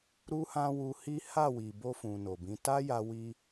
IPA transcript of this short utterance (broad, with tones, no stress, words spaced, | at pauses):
ɾu˦hã˦wu˧hi˦ ha˦˨wi˨bo˧ fũ˨no˨bĩ˨˦ ta˦ ja˧wi˧